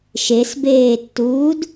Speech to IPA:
ʃesbeːtːuːd

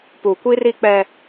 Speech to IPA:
puː˨kʷi˦ri˦k͡pɛ˦

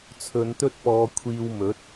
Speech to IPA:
t͡sʰɵ˨˧nt̪ɵ˥t̚pɔː˨˧ kʷʰiː˧wmɵ˨˥t̚

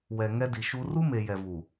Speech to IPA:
wɛ˨ ŋɛ˦di˨ʃu˦ ru˦me˨ jɛ˨vu˨

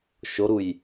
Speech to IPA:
ʃoɾuj

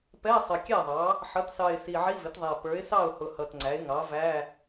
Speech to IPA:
pɛ˧˥˧ɪ̯sˤə˨˩kʲæ˥˩ðˤɑ˩˥ | ħʌ˩˥tsɑ˨˩ɪ̯ si˨˩ʕi˧˥˧vɪ˩˥tðˤæ˨˩ pə˞˩˥ɪ̯sɑ˥˩ʊ̯hʊ˨˩ hʌ˨˩tŋ͡ǀæ˩˥ɪ̯ŋɑ˩˥ væ˧˥˧

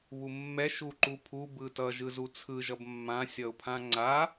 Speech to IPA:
βumːɛ ʃuǃupʰu bɯtʌ ʒɯzut͡sʰɯ ʒʌbmːã sʲʌʊ̯pʰãŋ͡ǀa

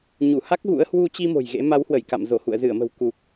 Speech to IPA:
ɲu˧˩ha˦˥k̚ ɣṵ˧˥ə̯ hwu˧t͡ɕi˧ mo̤˨˩jɣḛ˧˥ ma˨˦whwə˧˩j ka̰˧˨m zo˧˩hṵ˧˨ə̯zɨ˧˩ə̯mə̤˨˩w ku˨˩k̚

